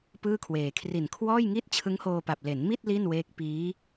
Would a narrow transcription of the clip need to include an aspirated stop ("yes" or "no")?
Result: yes